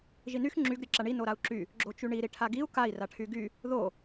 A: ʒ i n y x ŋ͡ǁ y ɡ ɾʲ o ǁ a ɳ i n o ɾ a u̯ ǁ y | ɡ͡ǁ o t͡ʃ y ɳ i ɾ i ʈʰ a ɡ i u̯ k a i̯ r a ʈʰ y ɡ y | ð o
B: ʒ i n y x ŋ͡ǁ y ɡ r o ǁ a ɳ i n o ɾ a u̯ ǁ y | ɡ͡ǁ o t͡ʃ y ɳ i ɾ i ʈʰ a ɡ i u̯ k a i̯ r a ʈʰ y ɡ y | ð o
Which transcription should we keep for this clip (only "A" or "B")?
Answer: A